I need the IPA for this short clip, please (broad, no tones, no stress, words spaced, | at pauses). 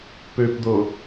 pøpd̪o